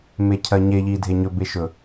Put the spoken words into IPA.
mecʰɜɲe ʎi dʱeɲɵ beʃɵ

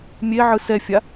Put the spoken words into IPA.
mʲeʕɯ sɛfʲa

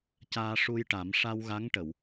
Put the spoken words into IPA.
caː˧ʂu˧jʈa˨˩˦m ʂa˧wɣa˧˥ŋʈə˨˩˨w

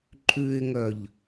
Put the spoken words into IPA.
ǃʼʉɪ̯ŋœʎ

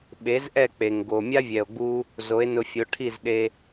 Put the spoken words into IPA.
ɓe˩˥zʔɛ˥˩k͡pe˩ŋ ɡo˩ mʲa˥vʲɛ˩o̯ ɡ͡bu˧ | zo˩˥e̯nʊ˧fʲo˩˥ ʈʰi˥˩zɗe˧

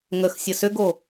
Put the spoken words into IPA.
ŋəxsʲə sʏɡo

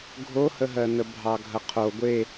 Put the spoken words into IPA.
ɡʱohəɦɜnə bʱɑɡʱɐqʰo ɡʷe

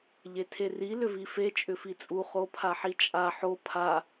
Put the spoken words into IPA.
ʎetʰeri lʏvife t͡ʃʼʏfit͡sʼu χopʰaħit͡ʃʼa ħo pʰa

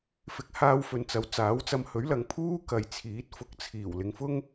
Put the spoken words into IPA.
fɪ˨˥k̚haː˧w fɵ˨nt͡sɐ˨˥w t͡saː˨˥wt͡sɐ˧m hɵ˨˥ɥlɐ˨ŋpʰuː˥ kɐ˨jt͡sʰiː˨˥t̚ fʊ˨k̚t͡sʰiː˨˩w lɪ˨˧ŋfʊ˥ŋ

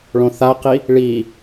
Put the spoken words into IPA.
ɭõθaqi | ɭi

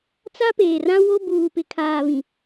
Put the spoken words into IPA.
t͡sa˦peː˨rã˦ wo˦ buː˨pɪ˨kʰaː˨βĩ˨

